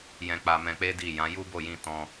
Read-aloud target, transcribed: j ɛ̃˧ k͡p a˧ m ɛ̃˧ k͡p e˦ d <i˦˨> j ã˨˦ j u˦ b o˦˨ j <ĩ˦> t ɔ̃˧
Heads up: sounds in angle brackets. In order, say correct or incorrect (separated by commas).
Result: correct, incorrect